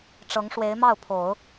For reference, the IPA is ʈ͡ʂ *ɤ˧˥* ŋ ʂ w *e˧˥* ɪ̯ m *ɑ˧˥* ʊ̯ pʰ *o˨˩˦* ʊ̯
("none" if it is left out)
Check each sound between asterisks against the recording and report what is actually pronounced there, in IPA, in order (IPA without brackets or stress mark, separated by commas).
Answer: ɤ˧˥, e˧˥, ɑ˥˩, o˨˩˦